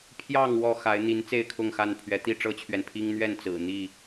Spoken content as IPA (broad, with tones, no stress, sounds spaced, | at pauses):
pʰ j ɑ˥˨ ŋ w ɔ˥˨ x a˨˦ ɪ̯ n̪ i˨˦ n t͡s e˥˨ ɪ̯ kʰ ʊ˥˨ ŋ x a˥˨ n pʰ ɥ ɛ˨˦ t̪ i˥˨ ʈ͡ʂ ɤ˦ t͡ɕʰ ɥ ɛ˨ n pʰ i˦ ŋ n̪ ɥ ɛ˥˨ n t͡s ɹ̩˨˩ n̪ i˥˨